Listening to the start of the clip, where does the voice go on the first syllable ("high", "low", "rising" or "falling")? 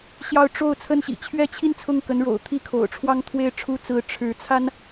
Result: falling